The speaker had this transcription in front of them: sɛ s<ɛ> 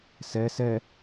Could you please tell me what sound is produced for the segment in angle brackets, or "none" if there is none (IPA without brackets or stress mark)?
ɛ